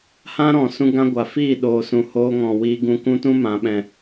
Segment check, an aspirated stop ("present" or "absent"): absent